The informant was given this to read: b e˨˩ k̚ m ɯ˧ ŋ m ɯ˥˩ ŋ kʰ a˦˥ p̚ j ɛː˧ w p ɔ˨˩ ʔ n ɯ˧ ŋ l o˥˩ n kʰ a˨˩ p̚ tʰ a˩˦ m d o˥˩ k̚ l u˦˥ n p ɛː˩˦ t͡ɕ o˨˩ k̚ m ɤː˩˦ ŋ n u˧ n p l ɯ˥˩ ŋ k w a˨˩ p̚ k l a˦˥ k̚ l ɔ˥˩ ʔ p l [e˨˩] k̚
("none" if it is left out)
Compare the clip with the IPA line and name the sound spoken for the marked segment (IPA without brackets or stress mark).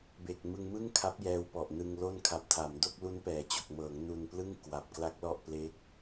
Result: e˥˩